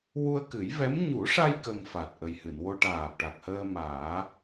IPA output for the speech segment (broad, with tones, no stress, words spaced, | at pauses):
wu˧ə̯kɨ˨˩˦jvɛ˧˥m ɲu˨˩˦ʂa˧j kə˧ŋfa˨˩t̚ ʔə˨˩jhɨ˨˩˨nwo˧ ʈaː˨˩p̚ʈa˨˩k̚həː˧ maː˨˩˦